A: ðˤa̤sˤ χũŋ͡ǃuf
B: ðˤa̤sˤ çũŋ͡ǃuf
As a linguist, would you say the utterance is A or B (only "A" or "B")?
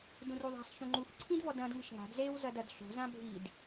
B